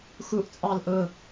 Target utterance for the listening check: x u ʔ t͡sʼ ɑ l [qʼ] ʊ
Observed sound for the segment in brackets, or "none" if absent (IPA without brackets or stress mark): ʔ